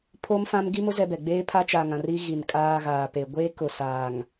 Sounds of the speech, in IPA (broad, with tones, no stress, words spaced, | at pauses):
pʰo˦mfã˦m ɡi˦mʊ˦ zɛ˦bɛ˨ ɡ͡beː˦ pʰa˦t͡ʃa˨ŋã˨r i˦ ɣi˨nkʼaː˦ɣaː˨pe˨ ɡʷeː˦kʊ˨ saː˨ŋ